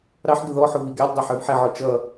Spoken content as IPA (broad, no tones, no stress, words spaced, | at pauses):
ɾɑħ ɡəðɔ ħʊviɡælʲ dˤɑħə˞vħɛ ʕɔt͡ʃʌ